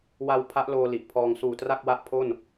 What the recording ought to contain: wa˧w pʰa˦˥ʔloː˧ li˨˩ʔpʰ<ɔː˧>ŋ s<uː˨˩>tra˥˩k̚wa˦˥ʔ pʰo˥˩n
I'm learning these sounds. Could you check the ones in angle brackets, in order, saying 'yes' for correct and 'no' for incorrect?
yes, yes

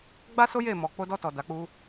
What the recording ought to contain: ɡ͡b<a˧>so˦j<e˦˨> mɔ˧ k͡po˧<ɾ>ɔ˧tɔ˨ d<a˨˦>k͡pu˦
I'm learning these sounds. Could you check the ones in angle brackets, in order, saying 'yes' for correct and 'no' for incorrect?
no, yes, no, yes

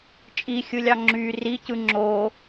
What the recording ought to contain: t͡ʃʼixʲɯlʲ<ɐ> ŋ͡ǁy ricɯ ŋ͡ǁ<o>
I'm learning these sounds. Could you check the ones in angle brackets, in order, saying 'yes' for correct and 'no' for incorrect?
no, yes

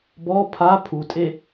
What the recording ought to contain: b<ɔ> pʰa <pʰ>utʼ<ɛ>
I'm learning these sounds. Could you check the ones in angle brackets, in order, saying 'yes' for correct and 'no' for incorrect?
yes, yes, no

